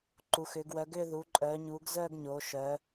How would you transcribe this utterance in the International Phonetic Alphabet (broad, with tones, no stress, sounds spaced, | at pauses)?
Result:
ǃ u˩˧ x ʏː˩˧ ɡ w œ˩˧ ɡ ʏː˥˧ ð u˩˧ ǃʼ œː˩˧ ɲ uː˩˧ ɡ z œː˥˧ ɡ ɲ oː˩˧ ʃ œ˩˧